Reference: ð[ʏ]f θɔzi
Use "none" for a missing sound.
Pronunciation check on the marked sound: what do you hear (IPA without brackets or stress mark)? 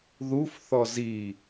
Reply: u